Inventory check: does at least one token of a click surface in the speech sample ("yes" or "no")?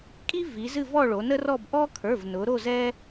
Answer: no